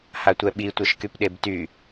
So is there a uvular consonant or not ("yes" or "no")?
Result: no